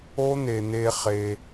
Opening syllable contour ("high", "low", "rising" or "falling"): high